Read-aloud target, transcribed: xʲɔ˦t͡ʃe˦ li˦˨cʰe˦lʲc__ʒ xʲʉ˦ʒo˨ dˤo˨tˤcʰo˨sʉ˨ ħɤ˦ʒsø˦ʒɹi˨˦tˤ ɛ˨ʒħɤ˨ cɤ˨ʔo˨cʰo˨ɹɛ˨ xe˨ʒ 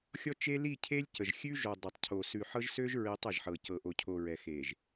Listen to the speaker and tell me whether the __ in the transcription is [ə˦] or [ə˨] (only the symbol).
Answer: ə˨